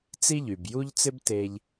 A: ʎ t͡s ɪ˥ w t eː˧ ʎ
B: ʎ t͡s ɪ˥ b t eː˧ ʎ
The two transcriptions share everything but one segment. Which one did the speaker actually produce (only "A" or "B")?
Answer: B